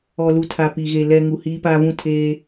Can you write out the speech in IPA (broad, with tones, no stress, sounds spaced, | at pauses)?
ɔ˨ l u˨ tʰ a˨ p i˨ ɣ e˨ l ɛ˨ ŋ u˨ h iː˦ p aː˦ v ũ˦˨ tʰ eː˦